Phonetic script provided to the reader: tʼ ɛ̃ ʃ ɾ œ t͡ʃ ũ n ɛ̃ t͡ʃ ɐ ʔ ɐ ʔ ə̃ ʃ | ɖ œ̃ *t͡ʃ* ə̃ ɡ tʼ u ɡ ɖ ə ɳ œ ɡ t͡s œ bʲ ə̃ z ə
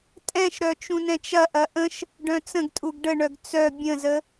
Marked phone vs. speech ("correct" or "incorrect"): incorrect